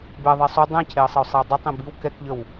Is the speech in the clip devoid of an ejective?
yes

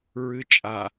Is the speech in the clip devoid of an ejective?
no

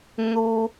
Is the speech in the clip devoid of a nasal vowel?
yes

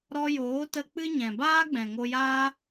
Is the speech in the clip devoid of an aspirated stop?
yes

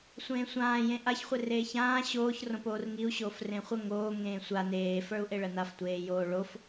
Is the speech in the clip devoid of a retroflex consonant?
no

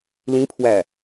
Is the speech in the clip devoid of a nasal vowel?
no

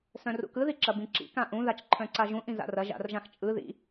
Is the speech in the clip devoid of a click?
no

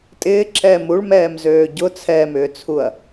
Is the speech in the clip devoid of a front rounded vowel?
no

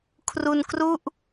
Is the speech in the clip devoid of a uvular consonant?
yes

